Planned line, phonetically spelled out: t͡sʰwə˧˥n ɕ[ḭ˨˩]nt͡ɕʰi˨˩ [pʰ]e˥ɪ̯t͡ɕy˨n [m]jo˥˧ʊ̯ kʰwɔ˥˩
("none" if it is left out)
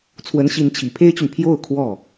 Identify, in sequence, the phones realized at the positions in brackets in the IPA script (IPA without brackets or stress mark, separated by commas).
i˧˥, pʰ, pʰ